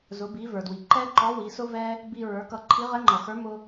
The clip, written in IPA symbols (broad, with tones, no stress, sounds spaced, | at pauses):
z ʊ˩˧ b i˩˧ v ə˞˩ d w i˩ ǃ ɛ˥ ǃ ɔ˧˥ w i˩˧ s ʊ˥ v ɛ˥ | b i˧ ɹ ə˞˩˧ k ʌ˧ ǃʰ i˧˥ ʁ ɛ˧˥ ŋ͡ǃ ʌ˩ x ə˞˧˥ m ʊ˥